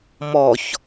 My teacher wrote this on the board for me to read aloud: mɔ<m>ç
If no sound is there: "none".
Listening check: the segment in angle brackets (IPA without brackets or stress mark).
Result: none